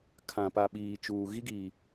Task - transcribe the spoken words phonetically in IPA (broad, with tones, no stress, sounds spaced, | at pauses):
kʰ ã˨ p a˨ ɓ iː˨ t͡ʃ uː˨ ɣ i˦ ɡ iː˨